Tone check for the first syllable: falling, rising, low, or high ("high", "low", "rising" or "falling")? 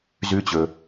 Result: rising